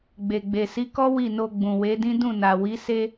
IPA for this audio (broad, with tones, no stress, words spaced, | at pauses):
ɡ͡be˨ɡ͡be˨si˨˦kɔ˦ wi˦˨no˧ ɡ͡bũ˨we˨˦dĩ˦ dũ˦˨na˨wi˨˦ se˧